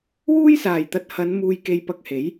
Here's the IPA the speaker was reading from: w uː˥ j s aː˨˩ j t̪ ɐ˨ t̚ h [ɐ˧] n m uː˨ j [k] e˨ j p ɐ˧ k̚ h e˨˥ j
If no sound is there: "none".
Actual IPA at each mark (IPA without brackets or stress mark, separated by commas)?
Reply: ɐ˨˧, k